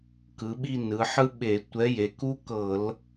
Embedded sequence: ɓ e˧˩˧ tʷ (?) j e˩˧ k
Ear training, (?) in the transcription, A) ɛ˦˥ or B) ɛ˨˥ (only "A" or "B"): B